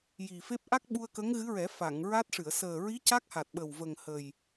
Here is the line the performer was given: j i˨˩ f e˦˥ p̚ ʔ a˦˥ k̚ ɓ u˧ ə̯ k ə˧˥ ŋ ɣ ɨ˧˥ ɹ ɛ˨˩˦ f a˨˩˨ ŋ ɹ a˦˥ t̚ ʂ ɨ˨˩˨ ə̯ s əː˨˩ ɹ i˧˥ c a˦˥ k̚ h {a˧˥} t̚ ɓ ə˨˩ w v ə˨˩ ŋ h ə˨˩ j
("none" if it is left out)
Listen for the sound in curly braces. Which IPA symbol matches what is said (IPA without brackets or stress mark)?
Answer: a˨˩